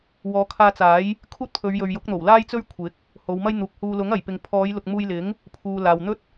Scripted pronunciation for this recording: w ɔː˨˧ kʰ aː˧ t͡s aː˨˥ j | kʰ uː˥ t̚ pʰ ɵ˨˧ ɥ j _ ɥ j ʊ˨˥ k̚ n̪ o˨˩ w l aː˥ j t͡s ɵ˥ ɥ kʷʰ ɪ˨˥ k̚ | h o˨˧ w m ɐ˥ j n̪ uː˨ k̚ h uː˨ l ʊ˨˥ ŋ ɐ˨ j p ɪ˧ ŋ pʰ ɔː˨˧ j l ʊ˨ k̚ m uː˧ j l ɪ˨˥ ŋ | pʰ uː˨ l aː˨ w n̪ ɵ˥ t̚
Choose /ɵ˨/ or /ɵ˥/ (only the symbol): ɵ˨